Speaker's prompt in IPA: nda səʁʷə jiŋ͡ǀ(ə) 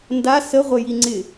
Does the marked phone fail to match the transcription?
yes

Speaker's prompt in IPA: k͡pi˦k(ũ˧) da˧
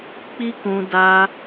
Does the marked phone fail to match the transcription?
no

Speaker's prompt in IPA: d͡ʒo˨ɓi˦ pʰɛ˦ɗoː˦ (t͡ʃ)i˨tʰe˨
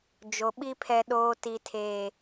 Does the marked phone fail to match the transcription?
yes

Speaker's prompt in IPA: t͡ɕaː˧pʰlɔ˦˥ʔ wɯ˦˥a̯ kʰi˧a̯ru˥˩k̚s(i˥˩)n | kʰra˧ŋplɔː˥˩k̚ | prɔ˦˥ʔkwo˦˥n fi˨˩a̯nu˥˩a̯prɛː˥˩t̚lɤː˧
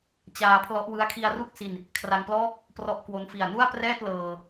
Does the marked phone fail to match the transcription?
yes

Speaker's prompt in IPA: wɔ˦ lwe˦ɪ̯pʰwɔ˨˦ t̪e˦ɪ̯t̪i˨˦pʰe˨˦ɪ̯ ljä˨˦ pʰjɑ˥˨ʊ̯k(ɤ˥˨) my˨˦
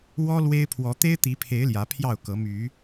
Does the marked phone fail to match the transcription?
yes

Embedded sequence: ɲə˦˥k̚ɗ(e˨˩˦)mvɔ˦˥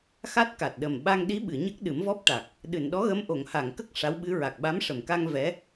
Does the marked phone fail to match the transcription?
yes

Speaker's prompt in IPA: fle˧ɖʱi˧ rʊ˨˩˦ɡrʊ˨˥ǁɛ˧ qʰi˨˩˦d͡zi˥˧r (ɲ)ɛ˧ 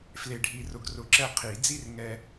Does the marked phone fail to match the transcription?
yes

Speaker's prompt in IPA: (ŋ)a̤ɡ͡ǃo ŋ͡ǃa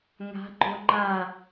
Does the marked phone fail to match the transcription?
no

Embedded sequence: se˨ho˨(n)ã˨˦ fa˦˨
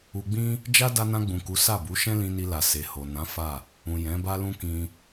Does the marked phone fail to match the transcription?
no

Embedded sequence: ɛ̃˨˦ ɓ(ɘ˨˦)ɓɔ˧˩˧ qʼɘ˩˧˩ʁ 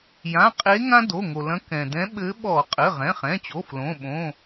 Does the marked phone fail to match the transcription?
no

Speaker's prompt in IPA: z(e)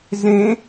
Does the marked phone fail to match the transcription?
yes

